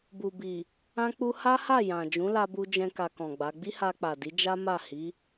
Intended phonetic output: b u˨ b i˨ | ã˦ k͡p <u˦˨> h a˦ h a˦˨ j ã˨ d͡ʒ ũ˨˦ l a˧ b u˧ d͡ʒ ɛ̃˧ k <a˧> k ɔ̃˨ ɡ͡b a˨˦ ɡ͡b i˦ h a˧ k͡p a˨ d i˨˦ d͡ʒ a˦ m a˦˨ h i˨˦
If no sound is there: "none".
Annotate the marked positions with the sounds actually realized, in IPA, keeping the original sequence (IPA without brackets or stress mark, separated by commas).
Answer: u˦, a˧